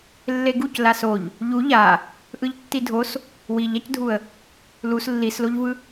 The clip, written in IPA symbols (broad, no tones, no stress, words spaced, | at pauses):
lːeɡuc lasoʎ | ʎu ʎa | ʔɯʎtːidʱos | wiʎacdʱuə̯ | lus lːisloʎvɯ